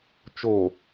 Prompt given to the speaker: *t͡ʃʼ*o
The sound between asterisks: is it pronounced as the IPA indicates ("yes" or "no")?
no